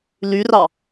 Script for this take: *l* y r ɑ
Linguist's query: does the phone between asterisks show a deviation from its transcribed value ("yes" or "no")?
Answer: no